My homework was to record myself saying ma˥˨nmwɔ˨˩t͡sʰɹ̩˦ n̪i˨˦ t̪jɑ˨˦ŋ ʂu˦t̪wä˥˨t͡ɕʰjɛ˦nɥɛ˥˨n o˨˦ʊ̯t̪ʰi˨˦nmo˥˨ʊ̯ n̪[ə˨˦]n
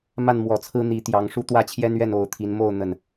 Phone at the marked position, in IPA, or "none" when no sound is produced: ə˥˨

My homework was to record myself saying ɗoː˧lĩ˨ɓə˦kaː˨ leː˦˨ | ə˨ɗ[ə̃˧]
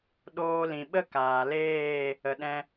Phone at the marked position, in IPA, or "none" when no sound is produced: ɛ̃˧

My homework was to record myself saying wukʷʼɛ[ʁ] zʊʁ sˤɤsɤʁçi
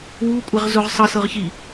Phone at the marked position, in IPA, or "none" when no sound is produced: ʁ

